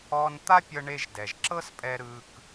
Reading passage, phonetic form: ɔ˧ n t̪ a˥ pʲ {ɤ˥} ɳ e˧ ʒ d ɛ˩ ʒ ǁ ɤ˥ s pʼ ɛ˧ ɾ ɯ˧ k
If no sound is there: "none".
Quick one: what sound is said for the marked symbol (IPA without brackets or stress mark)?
ɤ˧